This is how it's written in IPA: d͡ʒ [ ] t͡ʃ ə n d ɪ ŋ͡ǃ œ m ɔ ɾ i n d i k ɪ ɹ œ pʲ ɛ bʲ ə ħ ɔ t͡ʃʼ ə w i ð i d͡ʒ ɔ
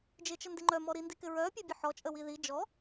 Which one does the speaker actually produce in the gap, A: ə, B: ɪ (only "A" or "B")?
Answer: B